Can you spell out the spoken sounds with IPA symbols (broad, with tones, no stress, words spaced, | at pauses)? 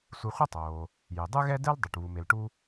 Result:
sʷe˧χʷʌ˥tˤoː˩ | je˩ dˤɯ˥ɣɛ˥dɛ˥l dˤu˩ʈ βu˩me˩lʈu˧